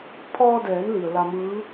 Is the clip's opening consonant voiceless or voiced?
voiceless